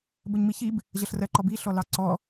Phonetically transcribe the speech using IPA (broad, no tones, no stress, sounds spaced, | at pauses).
b ə ɲ m i ç i b | ʑ ʌ ɬ r ɜ ǃ ɔ b i ɬ ɔ l ɑ ǀ ɔ